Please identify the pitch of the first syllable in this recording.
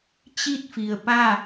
falling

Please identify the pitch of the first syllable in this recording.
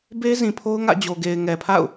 high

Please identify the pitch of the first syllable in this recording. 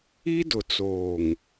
high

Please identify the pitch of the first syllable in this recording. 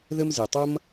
high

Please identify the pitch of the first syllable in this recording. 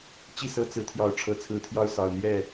falling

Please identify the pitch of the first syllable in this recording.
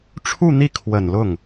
falling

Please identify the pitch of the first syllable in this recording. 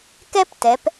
high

